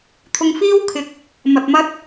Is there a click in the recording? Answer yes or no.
no